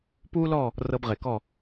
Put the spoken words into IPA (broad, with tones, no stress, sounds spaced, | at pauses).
p uː˦ l ɔ˦˨ | r ɤ˧ b ʁ e˨ k ɔ˦˨